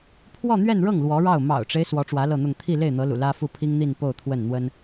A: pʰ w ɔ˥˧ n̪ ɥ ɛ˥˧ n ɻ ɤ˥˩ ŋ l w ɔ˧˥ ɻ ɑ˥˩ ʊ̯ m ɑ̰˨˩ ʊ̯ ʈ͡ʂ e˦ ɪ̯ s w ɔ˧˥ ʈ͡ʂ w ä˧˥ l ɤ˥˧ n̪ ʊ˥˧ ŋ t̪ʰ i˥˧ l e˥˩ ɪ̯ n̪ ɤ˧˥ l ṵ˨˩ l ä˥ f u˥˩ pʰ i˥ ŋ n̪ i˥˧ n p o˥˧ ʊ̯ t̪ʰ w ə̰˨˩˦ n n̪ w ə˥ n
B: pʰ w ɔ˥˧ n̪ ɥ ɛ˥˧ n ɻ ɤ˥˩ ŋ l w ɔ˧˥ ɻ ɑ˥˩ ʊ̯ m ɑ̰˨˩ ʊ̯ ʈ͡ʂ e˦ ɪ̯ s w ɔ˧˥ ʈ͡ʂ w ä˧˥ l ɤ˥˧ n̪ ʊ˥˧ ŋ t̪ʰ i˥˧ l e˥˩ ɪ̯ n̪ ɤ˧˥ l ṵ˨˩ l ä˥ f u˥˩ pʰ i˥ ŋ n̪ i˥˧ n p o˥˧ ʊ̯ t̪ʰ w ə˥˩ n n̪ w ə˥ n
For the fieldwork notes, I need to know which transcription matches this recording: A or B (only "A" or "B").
B